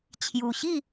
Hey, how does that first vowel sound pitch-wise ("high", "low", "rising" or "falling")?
low